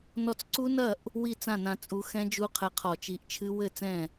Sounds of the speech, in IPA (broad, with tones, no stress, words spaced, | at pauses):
nɔ˧t͡sǀu˦˥nɐ˥˩ʔ | wi˥˩t͡sã˥˩nã˧ t͡sʼu˨˥ xɛ̃˦˥d͡ʒu˦˥qʰɛ˧qʰɔ˧˩˧ t͡ʃi˨˥ʔt͡ʃʰɨ˦˥ wɘ˥˩ t͡sɛ̃˥˩